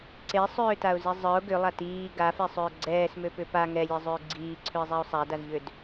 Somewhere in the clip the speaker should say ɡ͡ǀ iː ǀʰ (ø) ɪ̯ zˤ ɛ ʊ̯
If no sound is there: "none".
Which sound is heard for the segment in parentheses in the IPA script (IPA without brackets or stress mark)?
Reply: ø